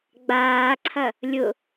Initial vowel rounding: unrounded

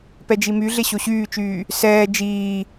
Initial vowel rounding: unrounded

